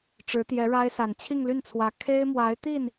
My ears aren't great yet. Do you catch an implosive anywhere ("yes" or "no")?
no